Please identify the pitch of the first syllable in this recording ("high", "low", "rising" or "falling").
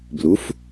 rising